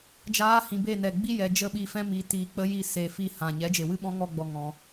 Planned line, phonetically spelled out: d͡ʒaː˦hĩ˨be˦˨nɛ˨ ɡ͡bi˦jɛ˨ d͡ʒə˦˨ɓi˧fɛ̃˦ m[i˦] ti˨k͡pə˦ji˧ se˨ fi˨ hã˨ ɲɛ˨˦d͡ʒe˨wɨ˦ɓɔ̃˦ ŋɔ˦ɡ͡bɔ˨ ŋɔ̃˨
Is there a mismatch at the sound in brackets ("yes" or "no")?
yes